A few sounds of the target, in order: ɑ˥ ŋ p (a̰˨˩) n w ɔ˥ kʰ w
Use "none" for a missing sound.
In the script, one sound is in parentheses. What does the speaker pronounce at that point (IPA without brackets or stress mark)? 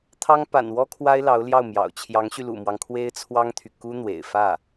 a̰˨˩